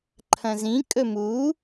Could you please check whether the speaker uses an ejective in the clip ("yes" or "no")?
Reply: yes